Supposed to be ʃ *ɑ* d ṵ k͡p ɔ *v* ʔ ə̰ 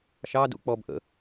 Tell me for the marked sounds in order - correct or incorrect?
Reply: correct, incorrect

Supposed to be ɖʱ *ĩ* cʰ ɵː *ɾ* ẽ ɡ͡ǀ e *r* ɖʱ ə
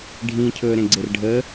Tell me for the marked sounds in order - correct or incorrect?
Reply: correct, correct, correct

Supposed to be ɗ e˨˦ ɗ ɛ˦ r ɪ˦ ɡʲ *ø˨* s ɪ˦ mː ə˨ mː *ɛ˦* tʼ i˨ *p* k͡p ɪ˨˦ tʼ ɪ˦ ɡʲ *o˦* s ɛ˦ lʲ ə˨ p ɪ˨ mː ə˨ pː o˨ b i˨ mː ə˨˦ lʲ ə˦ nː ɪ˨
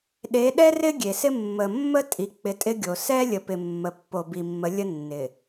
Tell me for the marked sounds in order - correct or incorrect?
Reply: incorrect, incorrect, incorrect, incorrect

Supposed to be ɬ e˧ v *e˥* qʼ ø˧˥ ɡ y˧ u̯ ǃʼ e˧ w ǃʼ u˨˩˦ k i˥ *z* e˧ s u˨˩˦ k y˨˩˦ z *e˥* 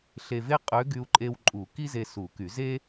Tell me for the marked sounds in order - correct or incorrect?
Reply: correct, correct, correct

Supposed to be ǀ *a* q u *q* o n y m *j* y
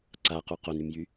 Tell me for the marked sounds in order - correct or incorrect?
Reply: correct, correct, correct

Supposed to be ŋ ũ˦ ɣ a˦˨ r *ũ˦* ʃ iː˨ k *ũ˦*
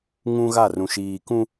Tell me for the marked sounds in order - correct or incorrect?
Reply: incorrect, correct

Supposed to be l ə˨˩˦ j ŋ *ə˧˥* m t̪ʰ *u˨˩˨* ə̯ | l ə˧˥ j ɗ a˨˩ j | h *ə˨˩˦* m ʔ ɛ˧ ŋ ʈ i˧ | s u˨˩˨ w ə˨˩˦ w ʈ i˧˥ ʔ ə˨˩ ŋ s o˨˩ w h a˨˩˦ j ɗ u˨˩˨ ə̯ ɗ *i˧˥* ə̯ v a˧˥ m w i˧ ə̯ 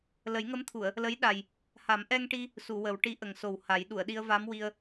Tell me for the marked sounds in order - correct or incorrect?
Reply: correct, correct, incorrect, incorrect

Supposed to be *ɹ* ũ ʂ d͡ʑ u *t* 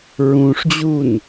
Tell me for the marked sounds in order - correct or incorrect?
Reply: correct, incorrect

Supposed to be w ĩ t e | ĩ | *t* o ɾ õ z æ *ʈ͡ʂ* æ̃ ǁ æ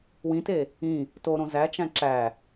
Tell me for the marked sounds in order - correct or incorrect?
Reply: correct, incorrect

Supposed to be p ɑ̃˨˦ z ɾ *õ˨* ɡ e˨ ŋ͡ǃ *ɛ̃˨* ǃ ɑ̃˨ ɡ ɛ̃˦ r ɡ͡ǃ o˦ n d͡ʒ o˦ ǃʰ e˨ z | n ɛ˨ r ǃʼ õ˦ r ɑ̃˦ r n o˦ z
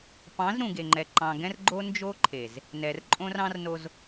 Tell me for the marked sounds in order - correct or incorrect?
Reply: incorrect, incorrect

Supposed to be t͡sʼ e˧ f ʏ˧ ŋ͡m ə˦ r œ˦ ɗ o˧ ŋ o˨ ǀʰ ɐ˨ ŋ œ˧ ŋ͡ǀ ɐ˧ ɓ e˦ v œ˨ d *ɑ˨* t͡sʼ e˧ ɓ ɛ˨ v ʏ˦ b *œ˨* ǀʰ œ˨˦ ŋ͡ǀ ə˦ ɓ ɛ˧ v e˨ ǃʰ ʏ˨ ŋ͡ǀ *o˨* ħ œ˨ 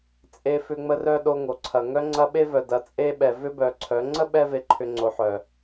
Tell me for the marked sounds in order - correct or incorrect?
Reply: incorrect, correct, correct

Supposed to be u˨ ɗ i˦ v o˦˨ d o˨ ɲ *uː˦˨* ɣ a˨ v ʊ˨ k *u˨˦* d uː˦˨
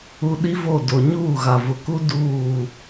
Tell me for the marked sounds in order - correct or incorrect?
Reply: correct, incorrect

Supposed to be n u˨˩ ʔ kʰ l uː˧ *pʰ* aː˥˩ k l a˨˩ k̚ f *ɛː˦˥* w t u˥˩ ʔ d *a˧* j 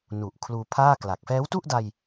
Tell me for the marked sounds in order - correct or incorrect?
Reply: correct, correct, correct

